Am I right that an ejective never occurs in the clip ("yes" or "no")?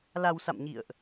yes